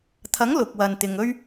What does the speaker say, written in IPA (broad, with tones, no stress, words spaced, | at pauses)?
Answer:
t̪ʰɐ˨˥ŋ lʊ˨k̚wɐ˨n t̪ɪ˨ŋɵ˥ɥ